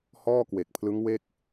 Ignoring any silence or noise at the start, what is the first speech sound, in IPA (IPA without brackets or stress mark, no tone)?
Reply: h